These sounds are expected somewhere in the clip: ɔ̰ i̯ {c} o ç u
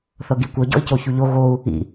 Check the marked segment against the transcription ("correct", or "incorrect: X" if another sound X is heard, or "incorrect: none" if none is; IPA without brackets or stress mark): correct